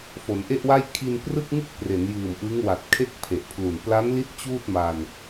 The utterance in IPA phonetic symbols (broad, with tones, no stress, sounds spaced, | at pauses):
f o˩˦ n ʔ e˥˩ ʔ w a˥˩ j kʰ i˧ n p r ɯ˥˩ k̚ ŋ ɯ˥˩ k̚ p r e˩˦ n j ɯː˨˩ m ʔ ɯ˦˥ ŋ w a˨˩ t̚ kʰ e˥˩ k̚ pʰ e˨˩ ʔ pʰ l u˨˩ n p l a˦˥ n l i˦˥ t̚ t͡ɕ uː˥˩ t̚ m a˧ n